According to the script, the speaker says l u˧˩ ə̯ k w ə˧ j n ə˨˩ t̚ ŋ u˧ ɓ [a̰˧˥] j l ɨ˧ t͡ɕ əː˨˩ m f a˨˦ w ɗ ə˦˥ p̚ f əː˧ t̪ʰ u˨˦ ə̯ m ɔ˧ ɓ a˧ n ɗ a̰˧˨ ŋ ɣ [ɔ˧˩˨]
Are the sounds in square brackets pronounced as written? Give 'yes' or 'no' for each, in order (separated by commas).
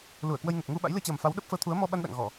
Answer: yes, yes